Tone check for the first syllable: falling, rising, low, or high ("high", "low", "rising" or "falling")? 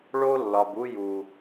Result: high